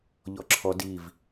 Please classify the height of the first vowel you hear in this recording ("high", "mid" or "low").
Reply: mid